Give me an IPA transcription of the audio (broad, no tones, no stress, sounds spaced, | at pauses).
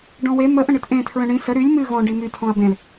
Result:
ɖ ɔ̃ w e m ə ʔ ə̃ ɳ ɨ t ʔ ẽ tʰ ɹ ə̃ ɳ ĩ s ə ɾ y lʲ m ɨ ɣ ɔ̃ ɖ i m y tʰ ɔ̃ ɐ̯ b ẽ l